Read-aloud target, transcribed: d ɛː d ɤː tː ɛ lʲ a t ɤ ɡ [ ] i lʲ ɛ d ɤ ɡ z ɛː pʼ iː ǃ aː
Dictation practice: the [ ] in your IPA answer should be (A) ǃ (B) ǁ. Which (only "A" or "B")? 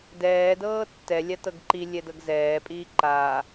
A